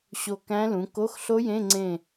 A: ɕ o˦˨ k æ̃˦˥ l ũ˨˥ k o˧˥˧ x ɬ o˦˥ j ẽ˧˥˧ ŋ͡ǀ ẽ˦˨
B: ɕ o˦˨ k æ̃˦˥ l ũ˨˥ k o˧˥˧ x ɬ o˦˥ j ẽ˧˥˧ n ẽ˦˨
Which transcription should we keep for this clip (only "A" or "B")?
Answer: A